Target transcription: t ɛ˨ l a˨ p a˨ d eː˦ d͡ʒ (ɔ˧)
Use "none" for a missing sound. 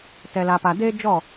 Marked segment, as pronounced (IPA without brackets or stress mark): ɔ˦˨